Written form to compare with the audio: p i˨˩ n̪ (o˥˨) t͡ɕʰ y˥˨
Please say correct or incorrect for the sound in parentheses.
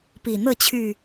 incorrect: ɤ˥˨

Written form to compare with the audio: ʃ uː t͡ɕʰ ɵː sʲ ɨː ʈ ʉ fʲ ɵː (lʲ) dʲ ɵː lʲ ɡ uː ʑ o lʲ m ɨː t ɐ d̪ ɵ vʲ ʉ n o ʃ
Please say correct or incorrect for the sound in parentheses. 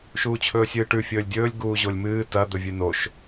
correct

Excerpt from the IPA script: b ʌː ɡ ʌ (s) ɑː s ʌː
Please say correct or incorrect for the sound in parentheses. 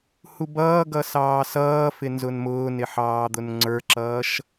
correct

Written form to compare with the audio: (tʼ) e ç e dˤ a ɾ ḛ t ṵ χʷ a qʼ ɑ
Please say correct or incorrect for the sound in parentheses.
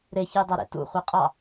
incorrect: ɾ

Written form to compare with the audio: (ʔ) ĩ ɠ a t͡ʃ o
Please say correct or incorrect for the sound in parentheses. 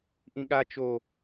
correct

